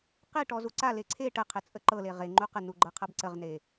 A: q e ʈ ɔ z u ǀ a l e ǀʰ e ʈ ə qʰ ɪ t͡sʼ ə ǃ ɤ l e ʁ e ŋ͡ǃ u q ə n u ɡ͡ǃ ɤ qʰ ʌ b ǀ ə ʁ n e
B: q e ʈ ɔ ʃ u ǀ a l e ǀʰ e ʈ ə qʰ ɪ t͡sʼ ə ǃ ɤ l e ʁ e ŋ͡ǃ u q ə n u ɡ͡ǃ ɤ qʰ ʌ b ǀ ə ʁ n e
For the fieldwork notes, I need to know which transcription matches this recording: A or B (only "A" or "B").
A